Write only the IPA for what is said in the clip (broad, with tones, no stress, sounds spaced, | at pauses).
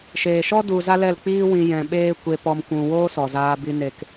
ʃ eː˨ ʃ ɔ˦ d u˧ z a˦ l ɛ˦˨ l k͡p iː˦ w ĩ˧ j ɛ̃˧ ɓ eː˦ kʷ e˧ p ɔ˧ m kʷ ũ˧ w oː˦ s ɔ˨ z aː˧ b i˧ n e˧ k